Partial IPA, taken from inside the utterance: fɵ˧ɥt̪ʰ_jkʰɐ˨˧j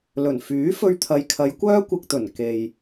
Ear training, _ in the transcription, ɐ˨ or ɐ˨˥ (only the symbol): ɐ˨